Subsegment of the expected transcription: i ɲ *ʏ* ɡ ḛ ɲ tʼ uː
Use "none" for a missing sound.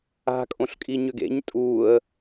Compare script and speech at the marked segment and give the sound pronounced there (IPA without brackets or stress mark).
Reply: ʏ